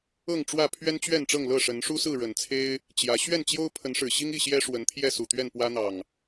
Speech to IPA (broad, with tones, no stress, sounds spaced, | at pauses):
ɤ˥˨ ŋ ʈ͡ʂ w ä˥˨ pʰ ɥ ɛ˦ n t͡ɕ ɥ ɛ˥˨ n ʈ͡ʂ ɤ˥˨ ŋ l ɤ˥˨ ʂ ə˨˦ n ʂ u˦ s ɹ̩˥˨ ɻ ə˨˩ n t͡sʰ e˦ ɪ̯ | t͡ɕ j ä˨˦ ɕ ɥ ɛ˥˨ n t͡ɕ j o˦ ʊ̯ pʰ ə˨˦ n ʂ ɻ̩˨˩ ɕ i˦ ŋ i˥˨ ɕ j ɛ˦ ʂ w ə˨˦ n t̪ʰ j ɛ˥˨ s u˨˩ t̪ ɥ ɛ˥˨ n p w ä˦ n̪ ɑ˨˩ ŋ